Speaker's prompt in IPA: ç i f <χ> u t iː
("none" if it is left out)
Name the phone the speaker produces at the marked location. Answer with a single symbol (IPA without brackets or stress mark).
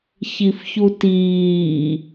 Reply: ç